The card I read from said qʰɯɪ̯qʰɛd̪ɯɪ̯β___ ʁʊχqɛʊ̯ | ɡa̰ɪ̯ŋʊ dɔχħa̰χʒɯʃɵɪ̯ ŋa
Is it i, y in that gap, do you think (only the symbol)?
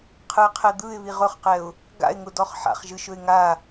i